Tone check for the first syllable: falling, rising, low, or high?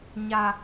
high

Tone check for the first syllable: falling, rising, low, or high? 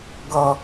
low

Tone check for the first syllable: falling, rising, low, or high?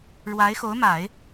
rising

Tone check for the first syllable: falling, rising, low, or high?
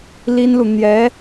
high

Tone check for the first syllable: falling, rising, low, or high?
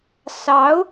rising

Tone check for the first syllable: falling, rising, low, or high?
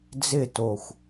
falling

